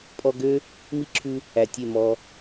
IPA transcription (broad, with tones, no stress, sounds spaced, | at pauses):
pʼ ɔ˧ ɡ ø˦ | m i˦ ǁʰ ʉ˧ | æ˨ tʲ e˦˨ m ɔ˧